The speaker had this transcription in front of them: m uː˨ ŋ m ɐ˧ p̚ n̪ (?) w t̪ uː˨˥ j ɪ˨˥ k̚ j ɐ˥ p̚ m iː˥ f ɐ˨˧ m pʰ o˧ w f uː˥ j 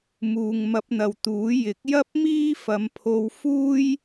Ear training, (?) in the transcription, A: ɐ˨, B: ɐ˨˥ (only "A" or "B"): A